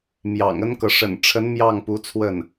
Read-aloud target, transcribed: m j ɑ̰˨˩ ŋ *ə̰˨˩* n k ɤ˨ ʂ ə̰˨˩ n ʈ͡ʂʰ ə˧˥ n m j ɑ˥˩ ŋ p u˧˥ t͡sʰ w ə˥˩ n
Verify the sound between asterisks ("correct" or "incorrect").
incorrect